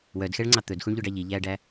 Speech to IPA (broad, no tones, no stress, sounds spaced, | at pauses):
w œ d x ɛ ɭ ŋ͡ǀ ɑ t̪ ɵ d x u ɳ ʎ ɵ ɖ ɑ ʎ i ʎ æ ɖ æ